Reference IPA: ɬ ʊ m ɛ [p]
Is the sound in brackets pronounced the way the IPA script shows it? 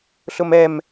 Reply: no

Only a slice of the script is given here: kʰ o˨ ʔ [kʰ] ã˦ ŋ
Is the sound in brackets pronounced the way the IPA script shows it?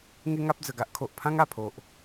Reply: no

